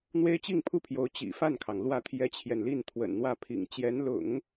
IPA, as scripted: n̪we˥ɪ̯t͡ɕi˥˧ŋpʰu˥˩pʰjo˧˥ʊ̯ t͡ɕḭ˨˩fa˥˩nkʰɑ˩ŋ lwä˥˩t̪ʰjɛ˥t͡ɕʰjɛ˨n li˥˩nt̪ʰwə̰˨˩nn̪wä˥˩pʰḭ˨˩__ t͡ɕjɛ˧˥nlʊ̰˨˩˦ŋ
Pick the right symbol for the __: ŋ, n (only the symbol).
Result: ŋ